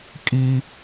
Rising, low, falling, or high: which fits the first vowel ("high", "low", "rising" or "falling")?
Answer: high